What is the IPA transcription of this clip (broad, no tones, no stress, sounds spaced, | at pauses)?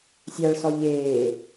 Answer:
sʲ a ɭ s ɔ ʎ eː